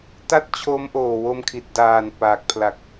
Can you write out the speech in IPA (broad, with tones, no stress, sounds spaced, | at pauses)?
t a˥˩ t̚ t͡ɕʰ o˦˥ m ʔ oː˨˩ w o˧ m kʰ i˨˩ t̚ d aː˨˩ n p aː˨˩ k̚ pʰ l a˨˩ k̚